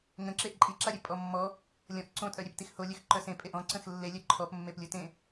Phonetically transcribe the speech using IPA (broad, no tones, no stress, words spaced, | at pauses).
ŋə̃ ǁeʔǃʼiǁaɾʲø pʼɔmːɔ | lʲɔ̃ʔ ǀõtʼœ ɾʲeptixholʲøx ǃœsẽ pʼeʔɔ̃ ǀə̃xlːelʲœ ǃʰɔpmːeplʲutẽ